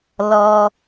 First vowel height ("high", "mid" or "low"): mid